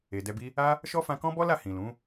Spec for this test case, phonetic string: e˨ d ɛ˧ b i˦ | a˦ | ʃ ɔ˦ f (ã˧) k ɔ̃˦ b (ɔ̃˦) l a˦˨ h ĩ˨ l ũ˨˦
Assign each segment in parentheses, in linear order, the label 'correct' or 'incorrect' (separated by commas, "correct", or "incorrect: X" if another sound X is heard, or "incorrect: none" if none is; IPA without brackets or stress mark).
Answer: correct, incorrect: ɔ˦